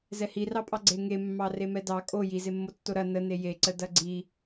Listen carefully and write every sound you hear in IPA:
z ɛ h i r ɑ pʼ ɑ ɡ͡ǀ e ŋ e mː ɑ r e m ɛ d ɑ kʼ o j i z e mː o tː o ɾ ɐ n ə n e j e ǀ ə d ɐ ɡ͡ǀ i

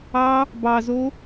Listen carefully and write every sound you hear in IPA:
ɑ | b ɑ z o

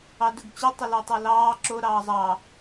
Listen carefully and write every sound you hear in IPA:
ɑ d ɵ ɡ t͡ɕ ɵ tˤ ə l ɤ tˤ ɤ l ɑː ǁ o ɾ ɑː zˤ ɑ

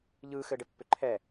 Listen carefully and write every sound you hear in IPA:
ʎ ɯː x ɘː ɖ ɘ pː ʏ ǃʰ ɛ

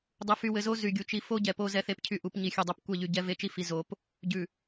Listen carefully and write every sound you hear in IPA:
dˤ u˨ f y˨ w ɘ˨ z o˦ z y˨ ɡʲ u˨ t͡ʃ i˦ f o˦ ɟ ɛ˨ p o˦ z ɛ˦ θ e˦ p cʰ y˦ ʔ u˨˦ p ɲ i˨ xʲ ʉ˨ dˤ o˦ p kʷ ɛ˦˨ ʎ y˨ ɟ ɛ˦ v e˦ t͡ʃ i˦ f i˨ z o˨˦ p | ɟ ʉ˨

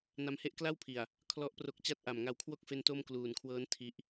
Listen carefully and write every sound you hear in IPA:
n a˧ m h e˦˥ ʔ k l a˥˩ w pʰ i˨˩ a̯ | kʰ l ɔ˦˥ ʔ p r o˦˥ k̚ t͡ɕ a˥˩ t̚ ʔ a˨˩ m ŋ a˧ w kʰ w o˥˩ k̚ f e˦˥ n t o˥˩ m k l uː˨˩ n kʰ w ɤː˦˥ n tʰ i˦˥ ʔ

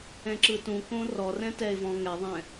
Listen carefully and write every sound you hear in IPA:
ɛ̃ ǁ ɯ t ũ k õ r ɔ r ɛ̃ t ɛ ɪ̯ v ɔ̃ ŋ ɛ ðˤ ɛ̃

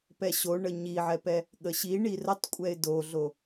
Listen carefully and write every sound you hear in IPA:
p ɛ ɕ o ɳ ə ɲ i ʕ ɛ p ɛ | ɠ ə ɕ i ɳ i r ə tˤ kʷʼ ɛ ɪ̯ d o ɮ o

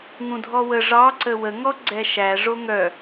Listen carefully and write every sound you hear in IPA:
ŋ ũ dʱ ɔ w ə ʐ ɑ ǀ ə w ə ŋ ɔ ɡ͡ǀ ɛ ʃ æ ʐ o ŋ œ

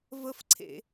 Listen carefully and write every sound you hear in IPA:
v ə f ǀʰ ḛ

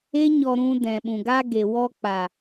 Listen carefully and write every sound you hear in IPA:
e˦ ɲ ɔ˧ ɾ ũ˧ d ɛ̃˨ ɓ ũ˨ ɡ a˧ ɡ e˨ w ɔ˧ k͡p a˨

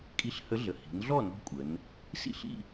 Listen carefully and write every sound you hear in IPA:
kʼ i˧˥ ɬ h ə˧˥ ɮ ə˩ h i̤˩˧ n ɮ ɔ˥˨ n ɔ̤˧˥ kʷʼ ə˩˧ n | s ḭ˥˨ ɬ ḭ˥˨

